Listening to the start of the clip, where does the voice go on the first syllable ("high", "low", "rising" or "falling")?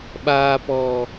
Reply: low